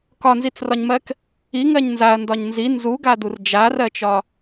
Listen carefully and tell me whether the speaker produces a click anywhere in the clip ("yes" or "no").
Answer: no